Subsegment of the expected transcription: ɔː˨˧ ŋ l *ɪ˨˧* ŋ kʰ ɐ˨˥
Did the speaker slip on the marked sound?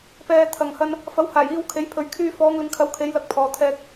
no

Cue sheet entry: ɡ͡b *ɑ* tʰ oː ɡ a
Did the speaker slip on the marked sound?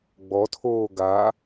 yes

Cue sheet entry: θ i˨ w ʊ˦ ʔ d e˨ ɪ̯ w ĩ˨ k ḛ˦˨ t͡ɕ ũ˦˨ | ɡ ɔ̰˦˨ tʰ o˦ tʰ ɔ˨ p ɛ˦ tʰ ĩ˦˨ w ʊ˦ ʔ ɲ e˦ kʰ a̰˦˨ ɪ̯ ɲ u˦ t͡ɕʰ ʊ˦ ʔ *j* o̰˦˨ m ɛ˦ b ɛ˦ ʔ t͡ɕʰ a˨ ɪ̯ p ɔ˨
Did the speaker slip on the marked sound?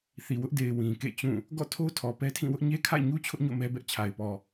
yes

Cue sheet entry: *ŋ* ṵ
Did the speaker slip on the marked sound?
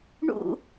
yes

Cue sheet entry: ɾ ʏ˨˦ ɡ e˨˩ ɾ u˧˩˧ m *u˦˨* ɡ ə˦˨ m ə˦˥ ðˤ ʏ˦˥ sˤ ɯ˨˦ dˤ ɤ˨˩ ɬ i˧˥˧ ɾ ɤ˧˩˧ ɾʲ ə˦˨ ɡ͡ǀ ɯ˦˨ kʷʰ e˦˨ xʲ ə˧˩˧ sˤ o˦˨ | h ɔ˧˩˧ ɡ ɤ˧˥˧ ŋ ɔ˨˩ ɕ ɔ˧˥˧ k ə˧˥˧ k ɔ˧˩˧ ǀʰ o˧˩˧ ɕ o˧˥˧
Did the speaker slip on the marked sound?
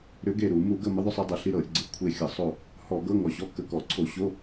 yes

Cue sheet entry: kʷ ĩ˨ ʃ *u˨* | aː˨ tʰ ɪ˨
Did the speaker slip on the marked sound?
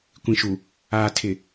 no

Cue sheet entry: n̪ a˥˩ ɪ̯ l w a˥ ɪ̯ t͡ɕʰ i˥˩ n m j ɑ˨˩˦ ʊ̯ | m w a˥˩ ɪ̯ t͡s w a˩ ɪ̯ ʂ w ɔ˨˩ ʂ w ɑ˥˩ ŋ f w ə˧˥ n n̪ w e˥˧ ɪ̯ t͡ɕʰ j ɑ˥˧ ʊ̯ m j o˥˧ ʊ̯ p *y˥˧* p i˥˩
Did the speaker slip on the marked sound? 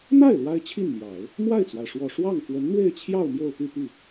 no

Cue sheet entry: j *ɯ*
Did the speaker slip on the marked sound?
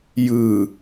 no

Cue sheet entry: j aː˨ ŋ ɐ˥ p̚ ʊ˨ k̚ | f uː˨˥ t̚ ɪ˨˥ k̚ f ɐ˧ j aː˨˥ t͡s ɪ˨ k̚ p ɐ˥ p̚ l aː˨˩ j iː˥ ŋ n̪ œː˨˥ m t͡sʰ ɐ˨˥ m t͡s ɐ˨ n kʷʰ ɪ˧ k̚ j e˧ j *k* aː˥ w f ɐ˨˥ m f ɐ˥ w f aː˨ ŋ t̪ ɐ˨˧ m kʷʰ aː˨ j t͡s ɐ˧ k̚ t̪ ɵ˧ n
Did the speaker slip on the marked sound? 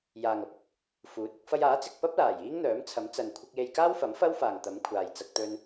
no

